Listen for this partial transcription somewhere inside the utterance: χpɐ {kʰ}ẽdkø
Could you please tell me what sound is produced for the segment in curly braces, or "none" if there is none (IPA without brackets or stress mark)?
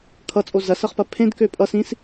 pʰ